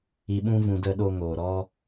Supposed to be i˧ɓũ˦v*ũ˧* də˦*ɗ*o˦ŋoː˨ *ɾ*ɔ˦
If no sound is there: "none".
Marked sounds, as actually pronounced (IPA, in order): ũ˧, ɗ, ɾ

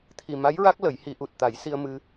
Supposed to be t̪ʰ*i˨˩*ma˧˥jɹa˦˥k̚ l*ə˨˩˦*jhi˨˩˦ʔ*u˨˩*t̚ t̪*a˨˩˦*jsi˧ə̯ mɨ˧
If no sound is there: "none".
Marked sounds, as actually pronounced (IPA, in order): i˨˩, ə˨˩˦, u˨˩, a˨˩˦

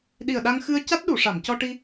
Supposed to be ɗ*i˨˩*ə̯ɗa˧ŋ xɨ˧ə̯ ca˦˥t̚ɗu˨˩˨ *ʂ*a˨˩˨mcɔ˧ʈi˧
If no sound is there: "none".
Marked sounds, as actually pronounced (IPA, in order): i˨˩, ʂ

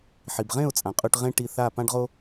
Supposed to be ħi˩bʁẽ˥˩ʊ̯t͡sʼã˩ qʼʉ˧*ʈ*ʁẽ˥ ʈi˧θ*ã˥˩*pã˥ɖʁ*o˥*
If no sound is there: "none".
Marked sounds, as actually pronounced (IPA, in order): ʈ, a˥˩, o˥

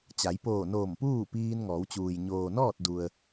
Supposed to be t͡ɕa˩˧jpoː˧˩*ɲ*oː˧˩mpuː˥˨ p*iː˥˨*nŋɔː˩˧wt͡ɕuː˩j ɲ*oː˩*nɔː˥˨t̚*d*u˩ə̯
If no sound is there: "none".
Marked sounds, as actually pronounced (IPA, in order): n, iː˧, oː˩, d

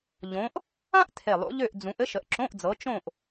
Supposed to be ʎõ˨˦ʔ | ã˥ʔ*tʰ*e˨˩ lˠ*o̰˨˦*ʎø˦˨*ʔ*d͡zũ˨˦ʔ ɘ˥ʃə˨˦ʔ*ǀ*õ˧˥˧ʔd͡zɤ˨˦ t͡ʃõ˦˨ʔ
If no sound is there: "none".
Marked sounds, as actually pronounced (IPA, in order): tʰ, o̰˨˦, ʔ, ǁ

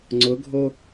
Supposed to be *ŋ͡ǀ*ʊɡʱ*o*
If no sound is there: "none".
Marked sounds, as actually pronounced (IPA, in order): ŋ͡ǀ, o

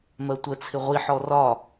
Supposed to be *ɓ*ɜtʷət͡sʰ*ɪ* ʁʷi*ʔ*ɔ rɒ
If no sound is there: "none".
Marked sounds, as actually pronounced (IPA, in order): m, ɪ, ħ

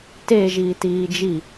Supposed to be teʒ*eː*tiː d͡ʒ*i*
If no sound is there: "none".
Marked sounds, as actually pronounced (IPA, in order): iː, i

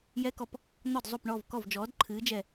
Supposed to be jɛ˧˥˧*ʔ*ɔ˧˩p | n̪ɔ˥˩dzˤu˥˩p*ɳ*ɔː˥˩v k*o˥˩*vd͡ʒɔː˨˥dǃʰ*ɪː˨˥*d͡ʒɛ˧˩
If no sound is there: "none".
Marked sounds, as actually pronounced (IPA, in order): k, ɳ, ɔ˥˩, ɨː˨˥

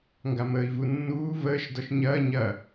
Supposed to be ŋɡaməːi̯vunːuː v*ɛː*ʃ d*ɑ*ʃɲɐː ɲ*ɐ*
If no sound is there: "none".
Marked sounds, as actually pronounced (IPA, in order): əː, ɔ, ɐ

